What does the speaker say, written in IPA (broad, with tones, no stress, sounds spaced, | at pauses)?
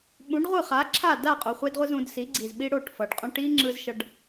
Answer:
ɓ ũ˨˦ ɖ ʁʷ ɯ˦˨ χ a˨˦ ǁʰ a˦˨ d a˦˨ qʼ o˨ χʷ e˧ d ʁʷ ɯ˧ z ũ˧ d s i˨˦ ɡ͡ǀ i˨ z ɓ i˦ ɽ o˦˨ ʈ f ʌ˨ ɖ qʼ õ˧ ʈ i˦ ŋ͡ǁ ɯ˧ z ʃ ʌ˧ ɖ